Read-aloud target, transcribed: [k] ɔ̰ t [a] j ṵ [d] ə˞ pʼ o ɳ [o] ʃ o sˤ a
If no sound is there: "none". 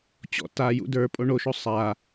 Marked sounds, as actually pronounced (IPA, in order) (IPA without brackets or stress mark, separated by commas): t͡ɕ, a, d, o